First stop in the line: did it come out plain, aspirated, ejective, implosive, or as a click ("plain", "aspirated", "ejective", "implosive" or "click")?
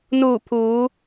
aspirated